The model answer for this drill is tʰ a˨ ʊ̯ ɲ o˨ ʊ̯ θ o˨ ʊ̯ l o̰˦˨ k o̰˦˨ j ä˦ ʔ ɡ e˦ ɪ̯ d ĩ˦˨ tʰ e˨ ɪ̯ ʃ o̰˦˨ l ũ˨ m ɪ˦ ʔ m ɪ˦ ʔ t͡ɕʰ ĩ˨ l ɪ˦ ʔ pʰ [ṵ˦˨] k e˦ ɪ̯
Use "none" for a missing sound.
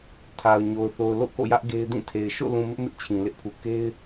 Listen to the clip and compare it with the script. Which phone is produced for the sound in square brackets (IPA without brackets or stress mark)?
u˨